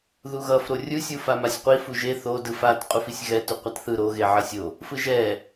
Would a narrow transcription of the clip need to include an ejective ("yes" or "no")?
yes